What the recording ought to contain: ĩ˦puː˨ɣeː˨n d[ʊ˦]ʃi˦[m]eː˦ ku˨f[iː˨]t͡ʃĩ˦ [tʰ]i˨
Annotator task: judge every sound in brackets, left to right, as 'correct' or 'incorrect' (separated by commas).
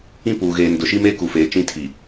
incorrect, correct, incorrect, correct